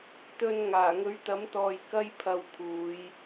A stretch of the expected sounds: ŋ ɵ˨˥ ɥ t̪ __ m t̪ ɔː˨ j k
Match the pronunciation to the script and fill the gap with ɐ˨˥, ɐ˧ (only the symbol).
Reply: ɐ˨˥